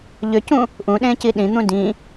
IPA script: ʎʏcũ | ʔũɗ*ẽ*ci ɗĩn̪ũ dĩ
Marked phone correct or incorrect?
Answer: correct